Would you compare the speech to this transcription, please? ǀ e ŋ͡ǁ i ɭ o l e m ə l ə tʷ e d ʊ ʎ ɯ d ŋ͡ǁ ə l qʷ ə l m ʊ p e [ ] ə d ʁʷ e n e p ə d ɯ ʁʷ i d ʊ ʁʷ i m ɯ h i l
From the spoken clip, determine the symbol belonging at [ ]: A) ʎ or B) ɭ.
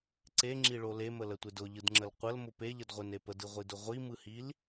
A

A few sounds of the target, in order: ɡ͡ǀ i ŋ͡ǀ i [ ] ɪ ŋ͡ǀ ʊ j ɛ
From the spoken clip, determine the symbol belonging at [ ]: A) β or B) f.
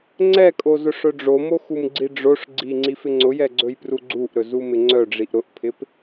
B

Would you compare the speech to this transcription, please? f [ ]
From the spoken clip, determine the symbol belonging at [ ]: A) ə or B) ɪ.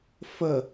A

